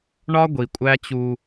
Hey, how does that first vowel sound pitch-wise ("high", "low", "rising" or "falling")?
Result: high